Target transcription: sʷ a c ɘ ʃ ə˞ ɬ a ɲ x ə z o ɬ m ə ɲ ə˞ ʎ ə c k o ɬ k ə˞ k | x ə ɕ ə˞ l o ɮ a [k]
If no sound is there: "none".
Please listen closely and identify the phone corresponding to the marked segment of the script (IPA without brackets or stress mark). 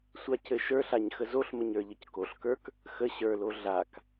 k